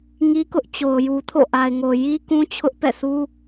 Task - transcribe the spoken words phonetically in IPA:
ŋ i˦ k ʊ˦ ʔ t͡ɕ o˨ ʊ̯ j u˨ tʰ o̰˦˨ ʔ a˨ ɪ̯ ŋ o˨ j i˦ k ũ˦ t͡ɕʰ ʊ˦ ʔ p ɛ̰˦˨ s u˦

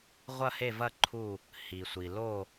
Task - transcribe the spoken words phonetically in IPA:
ʁʷ ɐ˥˨ h e˥˨ v ɐ˥˨ ǃʰ u˥˨ | h i˩ sʷ i˩ l o˥˨

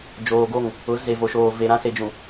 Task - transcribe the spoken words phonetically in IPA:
d͡ʒ oː˨ ɡ o˦˨ ŋ | ʊ˨˦ z e˨ v o˨ ʃ oː˨ v e˨ ɾ ã˦ s e˨ d͡ʒ ũ˨

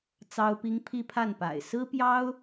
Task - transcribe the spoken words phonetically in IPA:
t͡s ɑ˥ ʊ̯ p i˥ ŋ pʰ i˥˧ pʰ a˥˩ n p a̰˨˩ ɪ̯ s ɹ̩˥ p j ɑ˥ ʊ̯

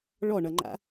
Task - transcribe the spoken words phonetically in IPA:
ɭ ɔ ɳ ʌ ŋ͡ǃ a̰

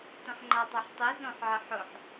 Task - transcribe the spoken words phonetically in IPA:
t õ ħ ŋ͡ǃ a tˤ o ħ tˤ i z õ ħ ʕ ɪ ħ ʊ ħ

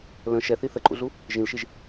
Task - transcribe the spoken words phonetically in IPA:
l ə̃ ʃ ɛ θ i θ ə ǃʼ ṵ ɮ u | ʒ ĩ l ʃ i ʒ

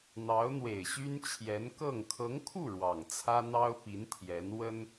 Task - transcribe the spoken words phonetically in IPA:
n̪ ɑ˧˥ ʊ̯ n̪ w e˨˩ ɪ̯ ɕ y˥ n t͡ɕʰ j ɛ˧˥ n k ɤ˥˩ ŋ kʰ ɤ˧˥ ŋ kʰ u˥˩ ɻ w ɑ˨˩ ŋ t͡sʰ ä˥ n̪ ɑ˥ ʊ̯ p i˧˥ n t̪ʰ j ɛ˧˥ n w ə˥ n

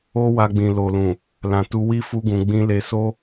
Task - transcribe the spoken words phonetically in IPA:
o˦ w a˧ ɡ͡b ĩ˨ l o˨ l ũ˨ | l ã˨ t u˧ w i˦ f u˦ ɡ ũ˧ ɡ͡b ĩ˧ l e˧ s o˦

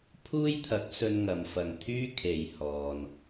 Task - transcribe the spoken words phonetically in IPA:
pʰ uː˥ j t̪ʰ ɐ˨˥ k̚ s ɵ˧ n ŋ ɐ˨ m f ɐ˨ ŋ t̪ʰ yː˥ kʰ e˨ j h ɔː˨ n

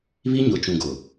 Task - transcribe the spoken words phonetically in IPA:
β i˦ ɲ ʊ˨ t͡ʃ ũ˨ ɡ ʊ˨

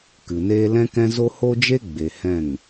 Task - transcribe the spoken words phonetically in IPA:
k ɨ˨ n eː˦ l ɛ̃˦ k ɛ̃˦ z o˦ h o˦ d͡ʒ e˦ ɡ͡b e˨ h ɛ̃˦˨ ŋ

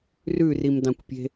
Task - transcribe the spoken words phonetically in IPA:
r ʉ r i m d ɑ̃ kʷ pʲ e̤

